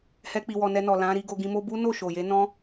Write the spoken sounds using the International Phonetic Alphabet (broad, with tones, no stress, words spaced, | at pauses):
hɛ˧k͡pi˨wɔ˨ nɛ˧nɔ˨lã˨˦ ɾi˧ɡo˧ɡĩ˧mo˦ bu˦no˦˨ʃo˨ je˨˦nɔ̃˦